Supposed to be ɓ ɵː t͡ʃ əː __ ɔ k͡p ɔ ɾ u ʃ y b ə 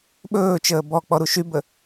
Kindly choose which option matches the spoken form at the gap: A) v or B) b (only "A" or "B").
B